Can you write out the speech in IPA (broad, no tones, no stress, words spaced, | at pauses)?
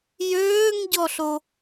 jøːŋɟɔɬo